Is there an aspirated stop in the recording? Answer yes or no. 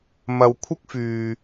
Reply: yes